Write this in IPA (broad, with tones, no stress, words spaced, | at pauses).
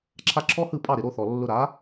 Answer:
ǁʰa˥ ǁʰɔ˥hɯ˥˨ pʼɑ˥˨ɾɪ˨˩ɾo˥˨θɔ˨˩ lːʊ˧ɾa˨˥